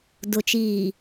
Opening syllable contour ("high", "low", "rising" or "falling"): low